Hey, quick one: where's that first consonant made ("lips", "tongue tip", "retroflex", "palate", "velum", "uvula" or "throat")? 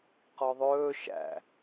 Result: uvula